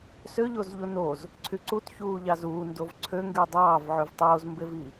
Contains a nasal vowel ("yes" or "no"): no